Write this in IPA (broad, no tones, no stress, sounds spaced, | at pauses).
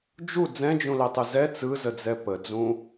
d͡ʒ u d͡z ɛ̃ d͡ʒ ũ l ɛ tˤ ɯ z ɛ t͡s ɯ z ə d͡z ɛ p ə d͡z ũ